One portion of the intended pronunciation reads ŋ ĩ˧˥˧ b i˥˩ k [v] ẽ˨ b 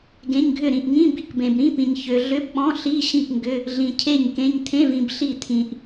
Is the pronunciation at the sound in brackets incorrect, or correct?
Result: incorrect